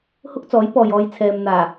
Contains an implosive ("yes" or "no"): no